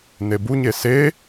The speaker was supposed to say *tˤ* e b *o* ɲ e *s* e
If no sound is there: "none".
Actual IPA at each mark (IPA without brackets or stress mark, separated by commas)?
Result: n, u, s